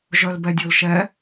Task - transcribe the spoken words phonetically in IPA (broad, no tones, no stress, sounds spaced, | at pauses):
ʒ œ l b ɛ dʲ o l ʃ ɛ